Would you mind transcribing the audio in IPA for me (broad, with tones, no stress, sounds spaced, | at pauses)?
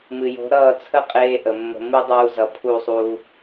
m ɨ˨ j o̤˨˦ ɾ ʌː˦˨ t͡sʰ ə˦ qʼ eː˦ ʔ ə˨ mː ə̤˧ m ɨ˦ dˤ uː˧ z ʌ˨ pʰ u˦˨ sˤ uː˧